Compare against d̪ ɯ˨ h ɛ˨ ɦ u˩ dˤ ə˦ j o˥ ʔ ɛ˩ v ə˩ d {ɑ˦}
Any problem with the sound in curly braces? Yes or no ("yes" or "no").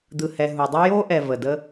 yes